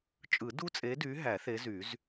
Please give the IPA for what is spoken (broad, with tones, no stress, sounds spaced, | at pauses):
t͡ʃʼ ɯ˨˩˦ d u˦˥ t͡sʼ e˨˦ d y˨˦ ɦ æ˨˩˦ θ e˨˦ z y˨˩˦ z